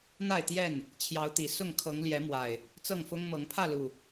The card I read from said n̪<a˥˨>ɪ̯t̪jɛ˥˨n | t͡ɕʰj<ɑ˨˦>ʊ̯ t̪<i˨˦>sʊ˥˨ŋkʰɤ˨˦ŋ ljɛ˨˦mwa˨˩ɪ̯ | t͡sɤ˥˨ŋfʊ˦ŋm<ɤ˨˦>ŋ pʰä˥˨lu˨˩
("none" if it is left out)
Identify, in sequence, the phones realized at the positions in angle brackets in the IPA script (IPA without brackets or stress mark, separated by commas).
a˥˨, ɑ˨˦, i˨˩, ɤ˨˦